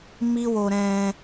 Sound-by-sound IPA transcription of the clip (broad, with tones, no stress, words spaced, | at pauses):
mi˦wo˧ɾɛ̃˧